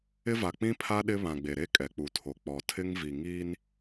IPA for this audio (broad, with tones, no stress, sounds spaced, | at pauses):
ɪ˦ v a˨ k͡p ĩ˦ pʰ a˦ ɗ ɪ˦ β ã˨ ɡ͡b e˨ ɾ e˦ kʼ ɛ˨ k͡p u˨ tʰ o˨ k͡p ɔ˨ tʰ ɪ˦ ŋ v i˨ ŋ iː˦ n